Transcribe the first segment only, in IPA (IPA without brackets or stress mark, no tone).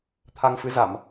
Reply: t̪ʰ